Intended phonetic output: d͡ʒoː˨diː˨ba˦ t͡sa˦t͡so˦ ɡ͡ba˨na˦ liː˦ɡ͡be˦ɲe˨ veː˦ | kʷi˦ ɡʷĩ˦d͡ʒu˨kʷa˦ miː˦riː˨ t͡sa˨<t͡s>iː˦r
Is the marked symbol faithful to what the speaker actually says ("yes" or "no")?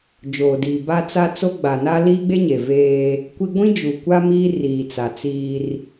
yes